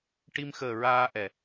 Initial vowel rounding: unrounded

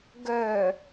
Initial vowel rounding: rounded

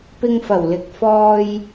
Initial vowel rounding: unrounded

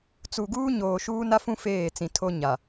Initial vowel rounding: rounded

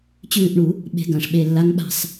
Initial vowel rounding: rounded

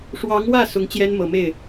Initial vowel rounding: unrounded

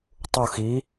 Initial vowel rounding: rounded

